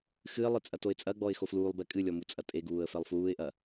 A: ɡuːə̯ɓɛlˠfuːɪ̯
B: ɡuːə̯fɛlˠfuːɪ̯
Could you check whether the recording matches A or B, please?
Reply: B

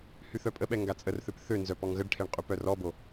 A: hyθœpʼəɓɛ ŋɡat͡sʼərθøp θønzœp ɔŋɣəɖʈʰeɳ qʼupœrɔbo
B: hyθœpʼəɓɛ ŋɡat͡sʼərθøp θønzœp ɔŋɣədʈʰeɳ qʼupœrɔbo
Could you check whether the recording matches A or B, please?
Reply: A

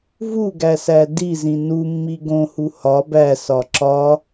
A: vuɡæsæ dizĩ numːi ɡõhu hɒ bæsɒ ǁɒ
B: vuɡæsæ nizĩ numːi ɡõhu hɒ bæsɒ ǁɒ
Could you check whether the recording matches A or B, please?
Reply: A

